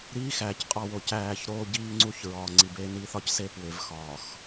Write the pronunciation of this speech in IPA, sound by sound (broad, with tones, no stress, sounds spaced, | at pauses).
ɾ iː˦ x æː˨ c qʼ ɒ˦˨ w o˨ c æː˦˨ ç ɾ oː˦ ɟ iː˦ ŋ͡ǀ u˦ ç ɹ ɒː˨ ŋ͡ǀ i˨ b eː˦ n i˦ θ ɒ˦ c s e˦ p w e˨ v x ɒː˨ x